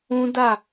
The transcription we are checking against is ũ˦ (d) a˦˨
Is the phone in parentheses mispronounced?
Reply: no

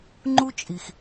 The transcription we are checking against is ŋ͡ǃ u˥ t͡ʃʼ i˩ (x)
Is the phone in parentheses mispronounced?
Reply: no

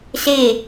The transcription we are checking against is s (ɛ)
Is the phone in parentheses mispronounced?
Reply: yes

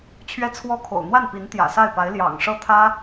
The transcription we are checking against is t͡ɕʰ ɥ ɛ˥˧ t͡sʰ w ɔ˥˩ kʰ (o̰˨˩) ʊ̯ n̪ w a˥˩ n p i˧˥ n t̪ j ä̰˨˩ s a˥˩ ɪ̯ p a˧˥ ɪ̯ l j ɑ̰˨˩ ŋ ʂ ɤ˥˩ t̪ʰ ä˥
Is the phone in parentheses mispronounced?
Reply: no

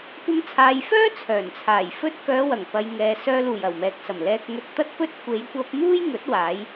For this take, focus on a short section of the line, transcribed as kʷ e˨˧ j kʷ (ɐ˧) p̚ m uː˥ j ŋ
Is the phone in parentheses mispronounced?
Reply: no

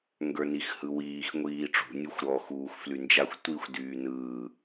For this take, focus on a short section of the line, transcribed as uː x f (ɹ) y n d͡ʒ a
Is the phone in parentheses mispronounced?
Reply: yes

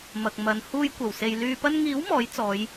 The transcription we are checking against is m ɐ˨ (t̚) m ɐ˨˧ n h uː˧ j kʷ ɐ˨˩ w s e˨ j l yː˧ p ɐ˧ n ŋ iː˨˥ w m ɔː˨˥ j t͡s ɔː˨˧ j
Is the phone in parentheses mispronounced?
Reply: yes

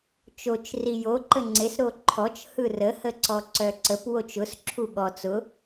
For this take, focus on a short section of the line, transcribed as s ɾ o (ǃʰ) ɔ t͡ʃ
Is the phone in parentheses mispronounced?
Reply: no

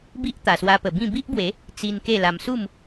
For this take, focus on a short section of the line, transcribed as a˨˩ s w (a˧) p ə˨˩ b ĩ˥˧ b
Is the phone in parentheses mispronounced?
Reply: no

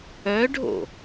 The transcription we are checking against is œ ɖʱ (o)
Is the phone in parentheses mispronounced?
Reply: yes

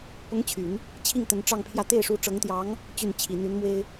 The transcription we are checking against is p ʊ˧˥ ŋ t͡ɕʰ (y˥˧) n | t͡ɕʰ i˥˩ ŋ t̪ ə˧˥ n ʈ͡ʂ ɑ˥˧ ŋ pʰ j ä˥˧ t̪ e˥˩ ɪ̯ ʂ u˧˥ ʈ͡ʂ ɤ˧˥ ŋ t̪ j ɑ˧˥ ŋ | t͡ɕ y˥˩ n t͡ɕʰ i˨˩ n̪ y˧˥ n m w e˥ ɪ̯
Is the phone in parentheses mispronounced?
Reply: yes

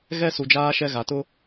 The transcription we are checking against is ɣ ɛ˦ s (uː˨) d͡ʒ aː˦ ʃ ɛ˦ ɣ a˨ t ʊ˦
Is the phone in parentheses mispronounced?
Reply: yes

